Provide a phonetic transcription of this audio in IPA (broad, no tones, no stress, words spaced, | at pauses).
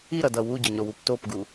iɾʌdʌ wuɟʌɲɾowup topɡu